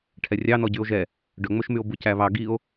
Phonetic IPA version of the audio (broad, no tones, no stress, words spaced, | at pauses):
ʈʰɛrʲɑnɔ ɟyo̯ʒɛ | ɖɵŋ͡mɵʃmyo̯ bucæβɑ ɡio̯